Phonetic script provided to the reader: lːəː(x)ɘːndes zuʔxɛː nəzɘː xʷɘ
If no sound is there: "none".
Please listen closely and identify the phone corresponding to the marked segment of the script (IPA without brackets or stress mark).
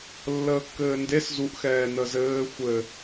kː